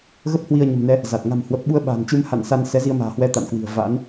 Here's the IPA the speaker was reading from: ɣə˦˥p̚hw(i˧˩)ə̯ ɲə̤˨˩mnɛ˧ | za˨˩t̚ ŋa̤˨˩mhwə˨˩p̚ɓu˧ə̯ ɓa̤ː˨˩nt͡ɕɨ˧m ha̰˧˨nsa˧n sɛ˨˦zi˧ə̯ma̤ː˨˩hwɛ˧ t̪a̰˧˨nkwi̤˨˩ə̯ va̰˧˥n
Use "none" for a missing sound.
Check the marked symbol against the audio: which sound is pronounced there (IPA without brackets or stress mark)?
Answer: i˧